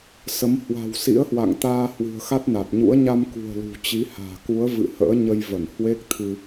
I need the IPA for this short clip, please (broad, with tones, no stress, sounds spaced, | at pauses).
s ə˨˦ m h w a̤˨˩ w s ḭ˧˥ ə̯ h w a̰˧˨ ŋ t̪ aː˧ h w ɨ̤˨˩ ə̯ x a˦˥ t̚ n a˨˩ t̚ ɲ ṵ˧˥ ə̯ ɲ a˧ m k ṳ˨˩ ə̯ l ṳ˨˩ t͡ɕ i˨˦ h a̤ː˨˩ k u˨˦ ə̯ v ɨ̰˧˨ h ə̰ː˧˥ ɲ ə˧ j v ə˧˩ n h w e˦˥ k̚ t̪ʰ ɨ˧